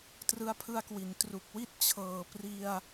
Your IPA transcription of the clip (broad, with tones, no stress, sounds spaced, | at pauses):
t r ɯ˧ a̯ pʰ ɯ˧ a̯ k w i˩˦ n t r u˨˩ k̚ w i˥˩ t̚ t͡ɕʰ ɤː˨˩ p r i˧ a̯